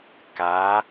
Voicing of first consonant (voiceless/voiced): voiceless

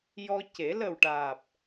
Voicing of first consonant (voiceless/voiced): voiced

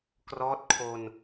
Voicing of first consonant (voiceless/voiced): voiceless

